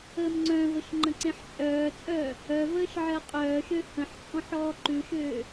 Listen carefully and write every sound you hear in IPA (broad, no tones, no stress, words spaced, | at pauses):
əːmŋ͡ǀœ̃vəʃ ŋ͡ǃə̃ǀẽħt͡ʃʼœːt͡sʼœː | œvəːʃ ʕɜqʼœːʃø hə̃ħt͡sʼɔ̃ħ ɔːǃʉʃøː